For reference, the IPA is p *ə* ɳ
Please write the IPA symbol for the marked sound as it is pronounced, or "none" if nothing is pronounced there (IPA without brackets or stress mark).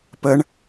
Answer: ə